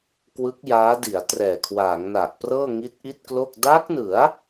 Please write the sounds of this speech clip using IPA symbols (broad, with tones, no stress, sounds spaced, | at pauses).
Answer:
k w ɯ˦˥ k̚ j aː˦˥ d i˩˦ a̯ t r ɛː˨˩ kʰ w aː˩˦ ŋ n a˨˩ ʔ p r ɤː˥˩ ŋ i˦˥ t̚ ʔ i˥˩ t̚ k l o˥˩ k̚ d a˦˥ k̚ n ɯ˩˦ a̯